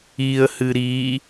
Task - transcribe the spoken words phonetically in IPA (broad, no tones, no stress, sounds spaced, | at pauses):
i ə̯ h ɨ ɾ i